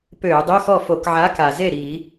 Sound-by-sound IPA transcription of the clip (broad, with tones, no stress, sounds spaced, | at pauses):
p øː˧˩˧ dˤ ø˧˥˧ x ɔ˥˩ f o˧˩˧ k ʕ a˨˥ k a˩ z e˥˩ ɾ iː˧˩˧